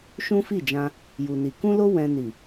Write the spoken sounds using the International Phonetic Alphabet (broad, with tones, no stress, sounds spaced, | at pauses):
ʃ ũ˦ f i˦˨ d͡ʒ ã˧ | j u˧ n i˧ k ũ˦ l o˦ w ɛ̃˧ n i˨